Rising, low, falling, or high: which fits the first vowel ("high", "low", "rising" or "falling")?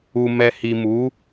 low